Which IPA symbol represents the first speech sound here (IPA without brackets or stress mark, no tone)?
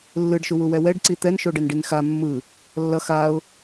lː